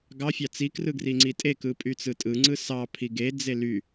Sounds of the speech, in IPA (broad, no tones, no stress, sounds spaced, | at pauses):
ɡ ɑ fʲ ɑ t͡s i k r ɯ ɡ r i ŋ͡ǀ i tʼ e k ɯ pʼ y t͡s ɯ tʼ ɯ ŋ͡ǀ ɯ s ɑ pʰ i ɡ e d͡z e l y